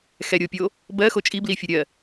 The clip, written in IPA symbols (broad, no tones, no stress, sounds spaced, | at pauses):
x ɛ ɾʲ o pʲ o | b ɜ x o t͡ʃʼ i b l i fʲ o ɾʲ ɜ